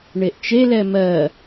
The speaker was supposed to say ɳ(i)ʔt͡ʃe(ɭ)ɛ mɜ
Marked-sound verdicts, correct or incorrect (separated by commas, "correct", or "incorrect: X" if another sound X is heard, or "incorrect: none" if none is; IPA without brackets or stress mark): incorrect: e, incorrect: l